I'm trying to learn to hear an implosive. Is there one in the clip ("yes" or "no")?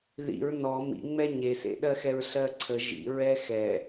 yes